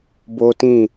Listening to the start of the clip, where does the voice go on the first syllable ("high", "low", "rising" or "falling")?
high